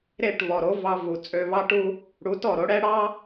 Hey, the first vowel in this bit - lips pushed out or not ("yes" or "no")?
no